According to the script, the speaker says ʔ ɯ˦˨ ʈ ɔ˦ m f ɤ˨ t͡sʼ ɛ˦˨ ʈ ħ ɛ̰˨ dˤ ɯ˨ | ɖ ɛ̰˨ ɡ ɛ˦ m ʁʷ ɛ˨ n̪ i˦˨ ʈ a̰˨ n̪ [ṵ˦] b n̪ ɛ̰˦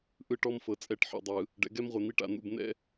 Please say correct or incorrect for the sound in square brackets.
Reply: incorrect